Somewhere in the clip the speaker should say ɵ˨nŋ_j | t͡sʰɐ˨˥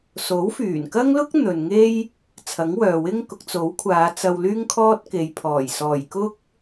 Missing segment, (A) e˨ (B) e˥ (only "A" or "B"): B